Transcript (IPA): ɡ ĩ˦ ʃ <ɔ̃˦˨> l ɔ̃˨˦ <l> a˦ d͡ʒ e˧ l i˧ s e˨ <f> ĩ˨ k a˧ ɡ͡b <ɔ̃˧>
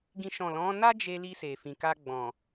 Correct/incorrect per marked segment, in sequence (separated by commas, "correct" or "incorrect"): correct, incorrect, correct, incorrect